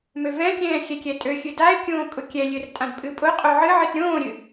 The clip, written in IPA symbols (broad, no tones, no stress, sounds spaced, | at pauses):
m ø v ɛ̃ kʲ ɛ̃ː xʲ ɛ kʲ ɛ tʼ ø xʲ ɨ d a ɪ̯ kʲ õː kʼ ʊ kʲ ɛ lʲ ø r tʼ ã d pʼ ɨ pʼ ʊ qʼ o ʕ ɨ ʕ ɨ t ɾʲ õː ɾʲ ɨ